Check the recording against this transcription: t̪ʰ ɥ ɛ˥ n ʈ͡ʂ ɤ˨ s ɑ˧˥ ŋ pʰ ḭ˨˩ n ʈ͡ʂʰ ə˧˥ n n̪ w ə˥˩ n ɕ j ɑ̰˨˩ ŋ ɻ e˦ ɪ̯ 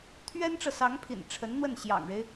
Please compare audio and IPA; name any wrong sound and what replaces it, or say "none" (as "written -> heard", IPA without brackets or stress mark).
none